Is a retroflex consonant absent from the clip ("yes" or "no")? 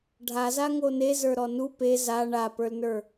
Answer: no